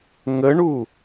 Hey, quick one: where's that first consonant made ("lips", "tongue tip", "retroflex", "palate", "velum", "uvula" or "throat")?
velum